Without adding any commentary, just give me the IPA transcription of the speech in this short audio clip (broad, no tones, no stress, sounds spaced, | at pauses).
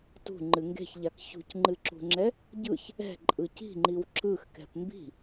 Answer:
t ṳ ŋ͡ǃ ɨ ŋ ɡ e̤ ç ʎ a k ç ṳ c ŋ͡ǃ ɨ ǁ ṳ ŋ͡ǁ ɛ | ɟ ɯ ç | ɛ̤ ǃʼ ɯ c i̤ ŋ͡ǃ i w ǁ ɯ x k ɛ̤ p m b i̤